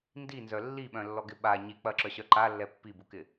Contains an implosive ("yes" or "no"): yes